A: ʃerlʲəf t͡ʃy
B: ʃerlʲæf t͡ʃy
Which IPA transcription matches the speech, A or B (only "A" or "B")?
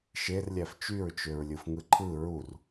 B